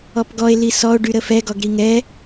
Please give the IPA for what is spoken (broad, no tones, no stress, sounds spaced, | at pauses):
ɔ p ɡ ɔ e̯ l i s ɔ o̯ ɖ y ɾ ə f ɛ ɡ ɔ ɡ ɾ i ŋ ɛ